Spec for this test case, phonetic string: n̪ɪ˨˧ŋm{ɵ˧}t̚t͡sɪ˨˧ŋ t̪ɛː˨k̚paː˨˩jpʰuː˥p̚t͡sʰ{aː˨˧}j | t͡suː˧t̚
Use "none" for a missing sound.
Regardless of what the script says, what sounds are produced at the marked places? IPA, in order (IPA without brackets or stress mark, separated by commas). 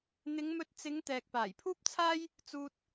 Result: ɵ˧, aː˥